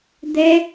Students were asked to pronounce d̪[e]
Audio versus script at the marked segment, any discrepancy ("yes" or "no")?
no